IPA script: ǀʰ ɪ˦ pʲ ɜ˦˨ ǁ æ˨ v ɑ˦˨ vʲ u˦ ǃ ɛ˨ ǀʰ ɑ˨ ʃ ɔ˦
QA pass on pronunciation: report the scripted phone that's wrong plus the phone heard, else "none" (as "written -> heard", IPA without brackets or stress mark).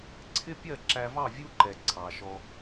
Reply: none